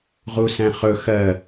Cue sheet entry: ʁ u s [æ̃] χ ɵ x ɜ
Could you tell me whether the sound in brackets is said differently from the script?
no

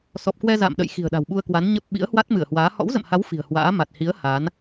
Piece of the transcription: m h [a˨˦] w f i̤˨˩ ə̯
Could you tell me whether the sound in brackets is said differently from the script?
no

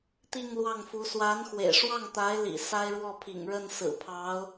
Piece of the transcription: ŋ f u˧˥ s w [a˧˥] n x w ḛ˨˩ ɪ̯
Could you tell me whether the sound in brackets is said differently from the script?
no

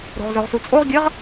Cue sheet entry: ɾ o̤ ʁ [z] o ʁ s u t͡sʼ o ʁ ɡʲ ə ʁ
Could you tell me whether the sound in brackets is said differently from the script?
no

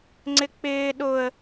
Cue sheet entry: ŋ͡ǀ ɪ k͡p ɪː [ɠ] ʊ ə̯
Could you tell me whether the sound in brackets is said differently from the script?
yes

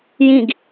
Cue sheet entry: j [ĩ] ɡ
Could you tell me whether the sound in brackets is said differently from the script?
no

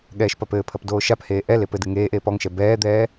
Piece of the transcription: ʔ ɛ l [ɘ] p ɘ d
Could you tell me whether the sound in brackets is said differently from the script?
yes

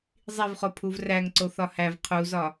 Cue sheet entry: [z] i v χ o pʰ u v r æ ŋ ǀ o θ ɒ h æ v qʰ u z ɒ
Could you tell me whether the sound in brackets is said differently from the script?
yes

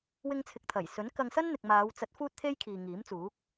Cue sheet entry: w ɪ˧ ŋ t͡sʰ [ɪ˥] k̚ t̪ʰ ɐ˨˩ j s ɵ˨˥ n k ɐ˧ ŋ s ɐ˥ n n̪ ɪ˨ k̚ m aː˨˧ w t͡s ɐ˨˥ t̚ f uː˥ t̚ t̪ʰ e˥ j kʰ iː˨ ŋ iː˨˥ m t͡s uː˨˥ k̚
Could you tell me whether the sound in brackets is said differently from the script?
yes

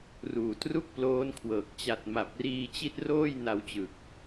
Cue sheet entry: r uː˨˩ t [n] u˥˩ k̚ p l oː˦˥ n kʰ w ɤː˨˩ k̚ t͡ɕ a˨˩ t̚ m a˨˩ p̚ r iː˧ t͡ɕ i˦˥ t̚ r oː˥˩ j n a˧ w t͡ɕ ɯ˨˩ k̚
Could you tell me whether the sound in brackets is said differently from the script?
yes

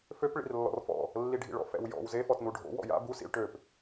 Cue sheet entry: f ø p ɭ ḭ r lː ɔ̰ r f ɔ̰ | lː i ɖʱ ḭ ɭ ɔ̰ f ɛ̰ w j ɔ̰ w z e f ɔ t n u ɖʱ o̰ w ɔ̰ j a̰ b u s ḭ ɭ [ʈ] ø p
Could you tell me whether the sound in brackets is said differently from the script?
no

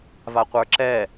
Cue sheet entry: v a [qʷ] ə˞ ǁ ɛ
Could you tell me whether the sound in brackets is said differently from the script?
no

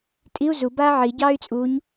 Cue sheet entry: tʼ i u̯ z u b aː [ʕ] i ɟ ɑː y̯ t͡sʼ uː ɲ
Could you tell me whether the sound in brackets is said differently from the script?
no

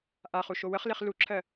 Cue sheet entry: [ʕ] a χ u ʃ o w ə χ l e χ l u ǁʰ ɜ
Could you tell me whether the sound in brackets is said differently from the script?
yes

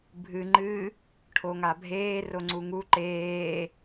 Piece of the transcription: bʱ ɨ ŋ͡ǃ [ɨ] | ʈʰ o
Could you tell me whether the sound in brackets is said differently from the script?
no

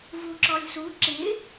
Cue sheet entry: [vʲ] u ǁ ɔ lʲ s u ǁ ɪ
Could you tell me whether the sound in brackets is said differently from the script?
yes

